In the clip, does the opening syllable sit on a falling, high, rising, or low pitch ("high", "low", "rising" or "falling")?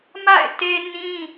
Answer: falling